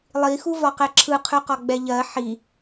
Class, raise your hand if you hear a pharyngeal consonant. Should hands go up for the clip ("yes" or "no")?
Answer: yes